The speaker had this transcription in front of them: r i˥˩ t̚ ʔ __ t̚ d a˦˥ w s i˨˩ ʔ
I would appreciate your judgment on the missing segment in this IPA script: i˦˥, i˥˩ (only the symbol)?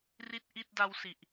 i˥˩